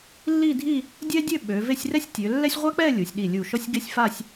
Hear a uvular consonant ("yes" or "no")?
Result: yes